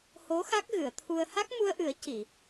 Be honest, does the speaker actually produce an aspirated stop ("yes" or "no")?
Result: yes